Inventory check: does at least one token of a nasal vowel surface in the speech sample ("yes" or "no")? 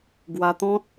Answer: yes